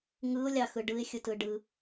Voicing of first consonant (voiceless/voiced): voiced